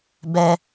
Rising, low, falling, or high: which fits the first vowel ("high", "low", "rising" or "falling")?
high